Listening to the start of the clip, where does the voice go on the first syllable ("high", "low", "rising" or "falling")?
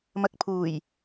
low